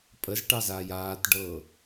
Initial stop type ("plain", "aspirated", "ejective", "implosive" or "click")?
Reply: ejective